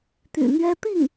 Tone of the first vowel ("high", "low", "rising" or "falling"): low